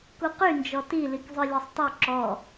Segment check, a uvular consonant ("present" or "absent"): present